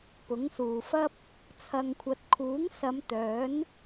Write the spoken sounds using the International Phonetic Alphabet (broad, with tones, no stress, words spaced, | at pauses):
pʊ˨˥ŋsuː˨fɐ˥p̚ | t͡sʰɐ˨ŋkʷʰɐ˨t̚ kʰuː˨˥ŋsɐ˨˧m t̪œː˨˥n